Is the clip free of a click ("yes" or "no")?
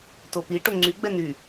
no